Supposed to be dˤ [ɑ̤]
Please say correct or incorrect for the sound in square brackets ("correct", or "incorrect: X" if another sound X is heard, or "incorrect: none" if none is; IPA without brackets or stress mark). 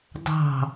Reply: correct